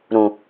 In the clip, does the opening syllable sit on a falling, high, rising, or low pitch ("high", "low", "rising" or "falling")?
low